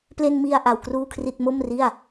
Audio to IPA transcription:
p l e˧ n m i˧ a̯ ʔ a˧ w k r uː˥˩ kʰ r i˥˩ t̚ m o˥˩ m r i˥˩ a̯

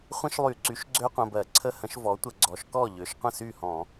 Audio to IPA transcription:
χʷ ə̃˦˥ ʃ lˠ y˧˩˧ ǀ y˩˥ ʃ ɡ͡ǀ ø˦˥ qʷ ə̃˩˧˩ b ɜ˧˩˧ ǀʰ ə˦˥ h ə̃˩˥ ʃ v ɔ˩˥ tʷ ə˧˩˧ ɡ͡ǀ ɔ˩˥ ʃ k ɔ˥˩ ʎ ø˩˥ ʃ qʷ ə̃˥˩ s y˥˩ h ɔ̃˧˩˧

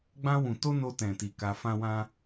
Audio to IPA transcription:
ɡ͡b ã˧ w ũ˨ t o˧ n o˧ t ɛ̃˨ t i˨ k a˧ f ã˦ w ã˦

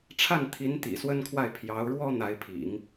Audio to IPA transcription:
ʈ͡ʂʰ a˥˩ n t̪ʰ i˧˥ n t̪ ḭ˨˩ s w ə˥ n kʰ w a˥˩ ɪ̯ pʰ j ɑ˧˥ ʊ̯ ɻ w ɔ˥ n̪ a˧˥ ɪ̯ pʰ ḭ˨˩˦ ŋ

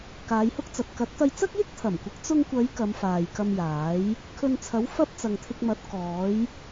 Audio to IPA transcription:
k aː˨˧ j h ʊ˥ k̚ t͡s ɐ˨ t̚ k ɐ˨˥ t̚ t̪ ɐ˧ j t͡s ɐ˥ k̚ j ɪ˥ k̚ t̪ʰ ɐ˨˩ m kʷ ɪ˨˥ k̚ t͡s ʊ˧ ŋ kʷ ɐ˨˧ j k ɐ˨˧ m f aː˨ j k ɐ˧ m j aː˨˥ j | kʰ ɵ˧ n t͡sʰ ɐ˨˥ w f ɐ˥ p̚ t͡s ɐ˨ ŋ t̪ʰ ɪ˧ k̚ m ɐ˨˥ t̚ k ɔː˨˥ j

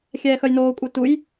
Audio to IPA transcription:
xʲ ɛː x œ j n oː kʷʼ e t u j

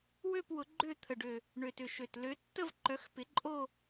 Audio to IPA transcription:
w ø˥˧ p w ʊ˨˦ ɡ͡ǃ ø˥˧ t̪ʰ ə˨˩ ɖ ø˨˩ | ɳ ø˨˩ t ʏ˨˩ ʃ ø˨˩ t l ø˨˦ tː ə˥˧ v ǃ œ˨˦ x p ɪ˨˦ ǃʼ o˥˧

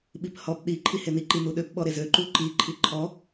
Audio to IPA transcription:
ɓ i p h ɔ p ɗ i ǃʰ i h e n i ǃ i n u ɗ ø p ɓ ɔ ɾ e z ø ǃ u ǃ i ǃʰ i ǃʰ ɔ

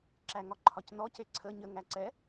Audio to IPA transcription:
ǁ æ ŋ ɒ ǃʰ ɒ c n ɔ c e ǀʰ ə ɲ ə ŋ æ ǀ ɛ

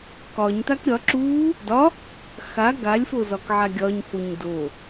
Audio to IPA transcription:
k ɒ ɲ t a k ɾʲ ɒ ǁ u | d ɒ | x a ɡ a lʲ f o z ɒ k ʕ a ɡʲ ɒ ɲ f o ɲ d o

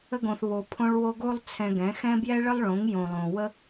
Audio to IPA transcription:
ə˧ ɡ õ˨ θ β o˨ pʰ õ˧ ɭ w o˧ ɡ o˧ lˠ t͡sʰ ɛ̃˨ ɡ ɛ̃˨˦ x ɛ̃˦ b j ɛ˦ ɭ ə˦ lˠ ɭ õ˨˦ ŋ j õ˨ lˠ õ˨ w ə˦

